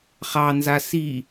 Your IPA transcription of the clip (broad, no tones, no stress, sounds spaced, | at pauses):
χ ɑ n z a s i